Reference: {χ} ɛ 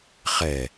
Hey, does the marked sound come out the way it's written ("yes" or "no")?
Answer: yes